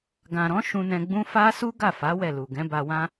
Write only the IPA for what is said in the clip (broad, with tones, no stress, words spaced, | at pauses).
ɡã˨ɾɔ̃˨˦ ʃũ˧nɛ̃˧ɡ͡bũ˦ fa˦su˦ ɡa˦˨fa˨˦ wɛ˦˨lu˨ ɡɛ̃˨˦ba˧wã˦